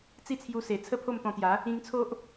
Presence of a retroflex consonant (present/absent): absent